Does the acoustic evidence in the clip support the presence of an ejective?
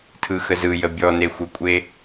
yes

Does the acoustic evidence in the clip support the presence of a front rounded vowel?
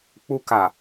no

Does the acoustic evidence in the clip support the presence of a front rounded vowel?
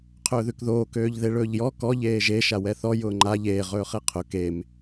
yes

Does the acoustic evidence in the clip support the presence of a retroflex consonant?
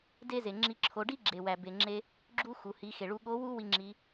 yes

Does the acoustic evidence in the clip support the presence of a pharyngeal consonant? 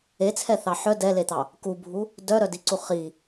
yes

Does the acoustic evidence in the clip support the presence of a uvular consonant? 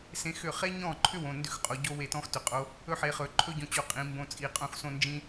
yes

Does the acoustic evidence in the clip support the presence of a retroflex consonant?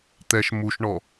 yes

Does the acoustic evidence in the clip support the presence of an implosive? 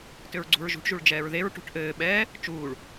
yes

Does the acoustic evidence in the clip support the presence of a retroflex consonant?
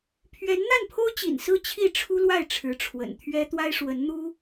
yes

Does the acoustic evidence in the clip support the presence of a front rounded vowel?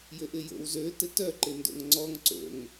yes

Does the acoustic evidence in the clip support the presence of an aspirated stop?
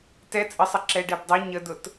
no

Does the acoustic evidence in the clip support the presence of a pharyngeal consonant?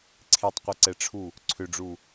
no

